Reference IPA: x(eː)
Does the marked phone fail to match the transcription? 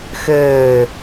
yes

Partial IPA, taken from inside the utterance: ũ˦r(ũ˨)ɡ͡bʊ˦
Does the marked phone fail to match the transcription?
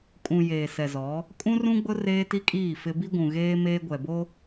yes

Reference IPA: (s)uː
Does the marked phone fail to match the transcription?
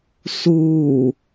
no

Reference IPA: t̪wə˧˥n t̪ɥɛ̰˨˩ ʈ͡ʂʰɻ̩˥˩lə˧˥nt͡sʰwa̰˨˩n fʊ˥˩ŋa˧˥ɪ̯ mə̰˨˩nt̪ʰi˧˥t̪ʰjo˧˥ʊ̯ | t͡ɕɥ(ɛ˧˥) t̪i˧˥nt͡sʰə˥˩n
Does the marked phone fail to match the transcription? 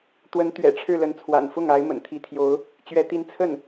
no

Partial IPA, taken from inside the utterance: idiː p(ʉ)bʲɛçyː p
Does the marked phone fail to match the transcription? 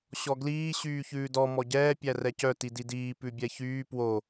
no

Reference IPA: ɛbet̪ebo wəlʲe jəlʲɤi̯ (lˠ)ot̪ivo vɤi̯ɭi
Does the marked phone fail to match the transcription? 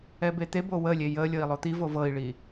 no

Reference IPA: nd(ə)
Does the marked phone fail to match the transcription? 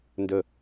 no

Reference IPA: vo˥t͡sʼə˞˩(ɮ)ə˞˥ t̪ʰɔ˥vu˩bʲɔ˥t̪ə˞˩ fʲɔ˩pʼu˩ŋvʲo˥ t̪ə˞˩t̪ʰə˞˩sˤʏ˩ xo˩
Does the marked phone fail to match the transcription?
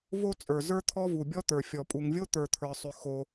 yes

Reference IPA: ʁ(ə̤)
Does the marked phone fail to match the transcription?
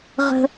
no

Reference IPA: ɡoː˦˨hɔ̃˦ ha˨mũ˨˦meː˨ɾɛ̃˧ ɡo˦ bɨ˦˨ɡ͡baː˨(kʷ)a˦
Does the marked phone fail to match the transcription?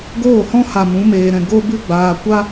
no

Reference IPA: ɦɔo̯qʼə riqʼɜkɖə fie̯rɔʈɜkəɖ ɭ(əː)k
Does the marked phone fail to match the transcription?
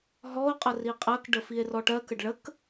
yes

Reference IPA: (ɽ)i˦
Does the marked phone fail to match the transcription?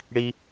no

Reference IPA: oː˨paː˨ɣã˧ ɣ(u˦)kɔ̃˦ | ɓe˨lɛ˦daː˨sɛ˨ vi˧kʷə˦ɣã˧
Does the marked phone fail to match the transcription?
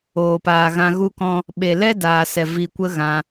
no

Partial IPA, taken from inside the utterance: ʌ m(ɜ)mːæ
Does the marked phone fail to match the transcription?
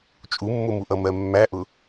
no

